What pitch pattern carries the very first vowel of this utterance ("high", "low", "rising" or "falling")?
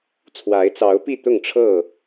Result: rising